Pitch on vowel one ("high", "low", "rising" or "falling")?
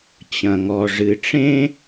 low